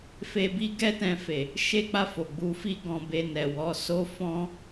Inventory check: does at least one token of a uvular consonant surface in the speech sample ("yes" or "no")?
no